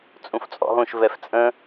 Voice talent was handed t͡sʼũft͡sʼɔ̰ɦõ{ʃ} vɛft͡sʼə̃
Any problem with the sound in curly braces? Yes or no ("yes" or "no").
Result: no